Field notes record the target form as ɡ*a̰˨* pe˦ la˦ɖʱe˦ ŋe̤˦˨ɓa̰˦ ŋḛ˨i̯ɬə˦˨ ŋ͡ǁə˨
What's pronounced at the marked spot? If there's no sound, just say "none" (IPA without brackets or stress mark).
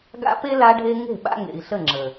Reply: a̰˦